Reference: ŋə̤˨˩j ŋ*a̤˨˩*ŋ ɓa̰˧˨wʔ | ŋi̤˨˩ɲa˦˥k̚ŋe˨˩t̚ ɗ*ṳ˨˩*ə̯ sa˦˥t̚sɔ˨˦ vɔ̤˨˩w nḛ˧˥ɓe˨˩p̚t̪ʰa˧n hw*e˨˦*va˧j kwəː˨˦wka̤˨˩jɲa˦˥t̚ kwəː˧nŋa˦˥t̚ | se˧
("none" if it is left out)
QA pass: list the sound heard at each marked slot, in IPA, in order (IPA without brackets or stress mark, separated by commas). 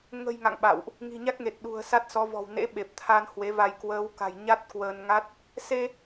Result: a̰˧˨, ṳ˨˩, e˨˦